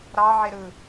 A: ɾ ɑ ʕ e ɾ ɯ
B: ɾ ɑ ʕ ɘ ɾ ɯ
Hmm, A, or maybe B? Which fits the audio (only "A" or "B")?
A